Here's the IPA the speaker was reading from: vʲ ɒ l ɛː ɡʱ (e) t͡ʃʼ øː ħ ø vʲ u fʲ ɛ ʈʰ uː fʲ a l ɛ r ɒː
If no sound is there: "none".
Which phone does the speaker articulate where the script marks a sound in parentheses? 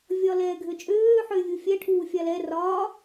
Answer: ø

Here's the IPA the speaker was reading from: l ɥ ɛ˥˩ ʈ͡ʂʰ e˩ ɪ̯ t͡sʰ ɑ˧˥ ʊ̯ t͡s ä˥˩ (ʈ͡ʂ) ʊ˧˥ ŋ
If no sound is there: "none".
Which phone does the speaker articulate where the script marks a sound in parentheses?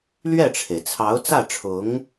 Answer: ʈ͡ʂʰ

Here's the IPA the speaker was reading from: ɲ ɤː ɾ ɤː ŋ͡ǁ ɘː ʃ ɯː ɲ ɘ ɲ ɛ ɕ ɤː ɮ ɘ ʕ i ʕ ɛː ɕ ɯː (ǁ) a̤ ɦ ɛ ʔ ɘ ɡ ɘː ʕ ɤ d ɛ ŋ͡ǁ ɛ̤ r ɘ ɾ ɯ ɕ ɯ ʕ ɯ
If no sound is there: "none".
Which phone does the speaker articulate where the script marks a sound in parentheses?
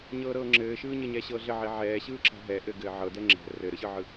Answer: ǁ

